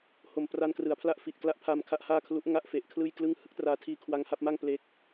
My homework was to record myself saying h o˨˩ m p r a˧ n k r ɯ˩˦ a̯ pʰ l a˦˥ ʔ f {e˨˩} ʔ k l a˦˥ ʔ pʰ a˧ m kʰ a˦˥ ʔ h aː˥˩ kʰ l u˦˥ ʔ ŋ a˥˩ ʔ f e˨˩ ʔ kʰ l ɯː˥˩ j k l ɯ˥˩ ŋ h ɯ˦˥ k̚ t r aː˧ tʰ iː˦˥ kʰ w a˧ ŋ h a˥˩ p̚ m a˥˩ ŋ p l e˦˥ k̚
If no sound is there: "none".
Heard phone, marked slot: i˨˩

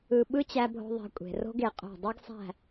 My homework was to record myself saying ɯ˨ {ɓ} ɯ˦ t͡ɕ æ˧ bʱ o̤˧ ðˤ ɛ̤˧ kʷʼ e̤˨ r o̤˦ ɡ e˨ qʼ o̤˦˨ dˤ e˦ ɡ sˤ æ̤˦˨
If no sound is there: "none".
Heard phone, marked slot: ɓ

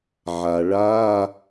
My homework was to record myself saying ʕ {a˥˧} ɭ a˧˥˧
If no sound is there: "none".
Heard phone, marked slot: a˩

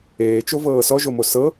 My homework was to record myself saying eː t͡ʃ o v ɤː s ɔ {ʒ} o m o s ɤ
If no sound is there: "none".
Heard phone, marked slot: ʒ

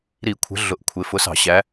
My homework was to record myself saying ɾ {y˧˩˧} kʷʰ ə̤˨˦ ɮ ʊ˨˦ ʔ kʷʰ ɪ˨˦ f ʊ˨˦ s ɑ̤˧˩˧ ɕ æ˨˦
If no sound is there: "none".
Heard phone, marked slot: i˧˩˧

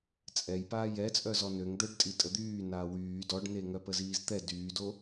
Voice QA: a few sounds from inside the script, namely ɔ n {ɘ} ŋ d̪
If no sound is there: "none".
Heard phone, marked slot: ø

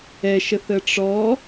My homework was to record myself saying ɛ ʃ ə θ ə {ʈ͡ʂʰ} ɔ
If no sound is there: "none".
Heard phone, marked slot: ʈ͡ʂ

